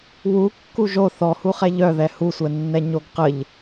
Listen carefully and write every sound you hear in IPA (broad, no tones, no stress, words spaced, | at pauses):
wu kːuʒo θɔhuχɛ ʎœðɛ husʷɛnːɛ ɲoɡqəʎ